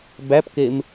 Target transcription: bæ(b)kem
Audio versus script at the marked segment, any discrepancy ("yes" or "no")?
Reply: yes